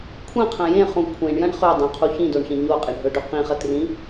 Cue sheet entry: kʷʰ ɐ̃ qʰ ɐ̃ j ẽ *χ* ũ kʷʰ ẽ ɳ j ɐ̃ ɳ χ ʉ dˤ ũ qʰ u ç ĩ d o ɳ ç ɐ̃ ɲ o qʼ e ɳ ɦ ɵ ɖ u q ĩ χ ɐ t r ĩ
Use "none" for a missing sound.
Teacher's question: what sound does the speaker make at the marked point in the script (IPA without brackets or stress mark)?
χ